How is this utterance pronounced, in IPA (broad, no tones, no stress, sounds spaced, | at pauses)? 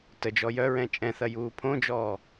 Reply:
t ə d͡ʒ ɔ j œ ɹ ɛ̃ t͡ʃʼ ɛ̃ θ ɐ j uː pʰ õ d͡ʒ ɔː